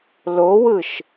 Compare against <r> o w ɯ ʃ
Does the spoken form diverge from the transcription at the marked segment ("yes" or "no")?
yes